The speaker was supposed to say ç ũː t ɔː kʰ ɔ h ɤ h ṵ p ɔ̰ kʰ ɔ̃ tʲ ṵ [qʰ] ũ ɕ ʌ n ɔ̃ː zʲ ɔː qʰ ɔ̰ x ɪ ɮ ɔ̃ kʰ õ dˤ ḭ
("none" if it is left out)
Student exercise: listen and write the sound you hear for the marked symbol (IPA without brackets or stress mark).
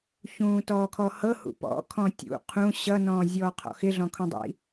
qʰ